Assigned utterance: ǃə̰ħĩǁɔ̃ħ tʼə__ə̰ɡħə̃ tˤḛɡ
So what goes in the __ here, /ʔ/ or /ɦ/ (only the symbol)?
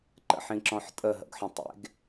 ɦ